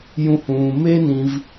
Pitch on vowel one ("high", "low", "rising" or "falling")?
high